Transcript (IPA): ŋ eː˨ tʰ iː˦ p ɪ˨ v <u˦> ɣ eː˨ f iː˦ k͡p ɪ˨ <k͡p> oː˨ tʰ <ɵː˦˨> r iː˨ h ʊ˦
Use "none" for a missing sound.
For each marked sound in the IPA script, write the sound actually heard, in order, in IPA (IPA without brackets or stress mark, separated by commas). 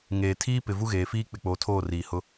u˦, k͡p, oː˦˨